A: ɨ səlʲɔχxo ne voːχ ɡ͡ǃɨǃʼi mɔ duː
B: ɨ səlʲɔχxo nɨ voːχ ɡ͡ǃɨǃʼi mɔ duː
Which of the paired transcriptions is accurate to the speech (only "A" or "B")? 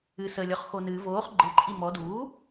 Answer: B